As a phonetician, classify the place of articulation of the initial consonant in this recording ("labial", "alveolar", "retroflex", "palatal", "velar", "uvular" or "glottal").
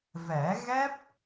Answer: labial